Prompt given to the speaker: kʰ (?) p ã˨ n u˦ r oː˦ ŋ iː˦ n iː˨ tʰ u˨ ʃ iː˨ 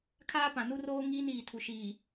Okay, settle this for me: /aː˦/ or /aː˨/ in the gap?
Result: aː˦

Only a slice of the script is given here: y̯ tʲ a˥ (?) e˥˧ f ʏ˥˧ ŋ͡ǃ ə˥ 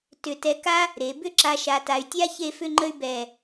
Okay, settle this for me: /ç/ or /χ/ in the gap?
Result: ç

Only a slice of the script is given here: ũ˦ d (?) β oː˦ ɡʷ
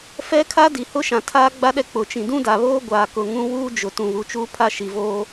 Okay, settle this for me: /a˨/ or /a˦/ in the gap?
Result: a˨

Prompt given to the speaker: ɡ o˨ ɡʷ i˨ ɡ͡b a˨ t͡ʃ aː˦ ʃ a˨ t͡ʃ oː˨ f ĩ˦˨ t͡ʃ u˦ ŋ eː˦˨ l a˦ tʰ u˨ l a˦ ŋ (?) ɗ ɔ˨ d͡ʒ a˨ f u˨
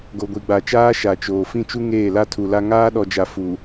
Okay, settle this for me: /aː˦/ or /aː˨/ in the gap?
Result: aː˦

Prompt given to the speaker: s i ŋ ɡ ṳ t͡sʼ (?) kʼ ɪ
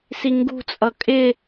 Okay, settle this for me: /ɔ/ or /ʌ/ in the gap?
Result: ʌ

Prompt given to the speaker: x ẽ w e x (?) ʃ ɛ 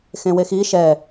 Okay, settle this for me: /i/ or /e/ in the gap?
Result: i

